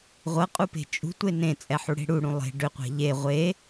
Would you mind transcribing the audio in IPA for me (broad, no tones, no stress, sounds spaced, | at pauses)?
ʁʷ ɤ qʼ u p e̤ t͡ʃʼ ṳ tʷ e n ẽ t͡sʼ ɛ ħ u ɽ e̤ ɽ u ɽ ũ lˠ e̤ ɖ ʏ qʷ ɛ̤ ʎ e ʁʷ e